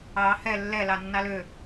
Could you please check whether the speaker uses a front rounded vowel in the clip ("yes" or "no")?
yes